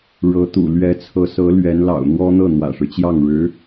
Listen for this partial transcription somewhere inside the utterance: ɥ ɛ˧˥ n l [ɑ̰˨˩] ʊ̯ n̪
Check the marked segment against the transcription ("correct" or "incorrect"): correct